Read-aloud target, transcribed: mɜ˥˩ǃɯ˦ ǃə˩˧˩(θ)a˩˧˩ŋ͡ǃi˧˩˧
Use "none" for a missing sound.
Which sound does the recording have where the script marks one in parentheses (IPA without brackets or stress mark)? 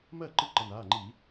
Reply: n